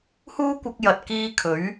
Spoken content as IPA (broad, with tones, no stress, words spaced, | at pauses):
huː˥ kʷɐ˧k̚ jɐ˨t̚kiː˧ kʰɵ˨˥ɥ